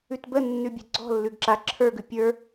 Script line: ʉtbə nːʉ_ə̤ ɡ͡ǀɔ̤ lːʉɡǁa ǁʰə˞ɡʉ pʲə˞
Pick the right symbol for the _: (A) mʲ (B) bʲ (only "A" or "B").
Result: B